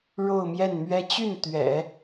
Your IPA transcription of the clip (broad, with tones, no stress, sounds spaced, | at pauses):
ɻ o˥˧ ʊ̯ m j ɛ˥˩ n m ɥ ɛ˥ t͡ɕ y˥˩ n t̪ ɥ ɛ̰˨˩˦